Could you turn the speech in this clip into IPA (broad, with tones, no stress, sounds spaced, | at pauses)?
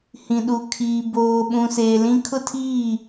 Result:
h ĩ˨ ɗ u˨ kʰ iː˨ b oː˨ ɓ ũ˨ s eː˨ l ĩ˦ kʰ ʊ˦ tʰ iː˦˨